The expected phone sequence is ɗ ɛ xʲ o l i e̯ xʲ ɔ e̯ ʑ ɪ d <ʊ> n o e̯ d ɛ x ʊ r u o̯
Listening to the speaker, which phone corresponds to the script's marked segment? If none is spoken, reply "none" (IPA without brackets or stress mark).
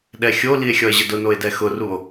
ʊ